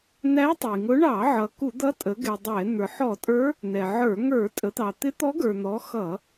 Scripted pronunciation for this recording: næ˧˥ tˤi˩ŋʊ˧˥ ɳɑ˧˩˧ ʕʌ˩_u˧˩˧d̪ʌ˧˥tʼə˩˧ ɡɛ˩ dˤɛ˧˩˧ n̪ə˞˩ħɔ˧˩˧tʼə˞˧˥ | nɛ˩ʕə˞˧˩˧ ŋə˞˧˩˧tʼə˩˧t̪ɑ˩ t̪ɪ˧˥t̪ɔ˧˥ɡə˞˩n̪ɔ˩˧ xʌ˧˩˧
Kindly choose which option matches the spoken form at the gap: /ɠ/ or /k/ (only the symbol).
k